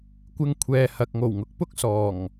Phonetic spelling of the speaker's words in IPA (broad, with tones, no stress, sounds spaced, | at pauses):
kʷ ɪ˧ ŋ kʷʰ ɛː˨ h ɐ˨ k̚ ŋ o˨˩ w ŋ ʊ˨˥ k̚ p ʊ˥ k̚ s ɔː˨˩ ŋ